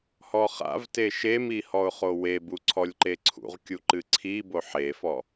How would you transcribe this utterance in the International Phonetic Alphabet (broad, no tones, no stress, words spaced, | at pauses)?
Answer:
hɔχa̰vte ʃemi hɔʊ̯χowebu ǀʰɔlʲǃeǀʰṵʁkʲu ǃɨǀʰibo ħefɔ